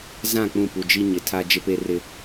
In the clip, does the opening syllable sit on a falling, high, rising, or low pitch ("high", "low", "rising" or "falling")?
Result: falling